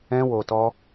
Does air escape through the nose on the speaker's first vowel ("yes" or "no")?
yes